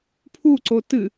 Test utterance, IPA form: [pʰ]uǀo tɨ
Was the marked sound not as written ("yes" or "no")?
no